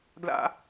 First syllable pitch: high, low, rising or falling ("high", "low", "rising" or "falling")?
high